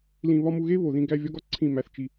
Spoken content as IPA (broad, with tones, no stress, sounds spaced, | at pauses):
l ĩ˧ β ɒ˦ m u˧ ɣ e˦ β o˨ ð ĩ˧ ɡ æ˧ vʲ ɒ˦ ɡ ɒ˦ ǀʰ ĩ˦˨ m æ˧ θ t͡ʃ i˧